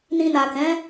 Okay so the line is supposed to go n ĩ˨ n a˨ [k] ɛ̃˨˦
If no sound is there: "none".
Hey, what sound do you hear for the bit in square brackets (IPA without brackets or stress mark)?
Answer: k